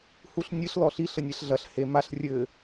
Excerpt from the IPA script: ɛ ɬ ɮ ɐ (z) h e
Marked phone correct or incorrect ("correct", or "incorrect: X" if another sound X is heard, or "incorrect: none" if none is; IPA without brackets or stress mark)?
incorrect: ɬ